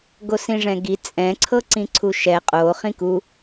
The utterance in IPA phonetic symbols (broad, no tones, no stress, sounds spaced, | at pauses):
ɡ o s ĩ ʐ ɛ̃ ɡ i t͡sʼ ɛ̃ ǀʰ ɤ ǀ ĩ ǀʰ u ʃ ɛ qʼ o χ ĩ k u